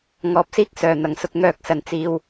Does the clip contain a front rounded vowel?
yes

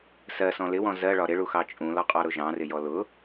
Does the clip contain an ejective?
yes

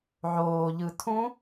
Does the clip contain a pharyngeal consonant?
yes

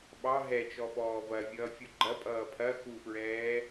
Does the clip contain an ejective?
yes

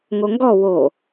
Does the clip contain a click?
no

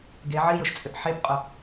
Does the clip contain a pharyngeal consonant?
yes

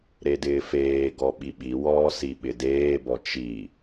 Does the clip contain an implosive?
yes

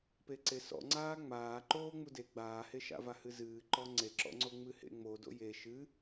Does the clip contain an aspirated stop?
no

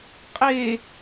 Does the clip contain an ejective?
yes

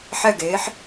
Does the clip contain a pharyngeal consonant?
yes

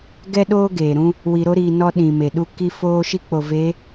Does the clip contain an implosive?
yes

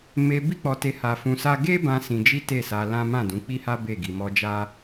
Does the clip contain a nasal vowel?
yes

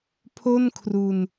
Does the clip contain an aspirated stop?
yes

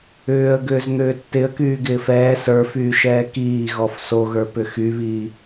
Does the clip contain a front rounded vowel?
yes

